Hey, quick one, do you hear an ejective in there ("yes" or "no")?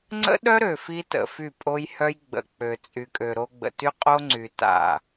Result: yes